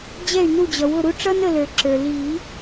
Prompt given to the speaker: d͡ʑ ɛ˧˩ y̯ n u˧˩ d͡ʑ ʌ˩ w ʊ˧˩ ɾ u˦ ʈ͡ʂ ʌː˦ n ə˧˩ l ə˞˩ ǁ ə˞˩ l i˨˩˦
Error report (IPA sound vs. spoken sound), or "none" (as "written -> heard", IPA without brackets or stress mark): none